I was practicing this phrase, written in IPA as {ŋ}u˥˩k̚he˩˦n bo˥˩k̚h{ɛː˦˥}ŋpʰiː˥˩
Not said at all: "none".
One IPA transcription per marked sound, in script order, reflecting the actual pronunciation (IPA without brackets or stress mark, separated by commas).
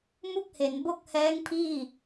m, ɛː˦˥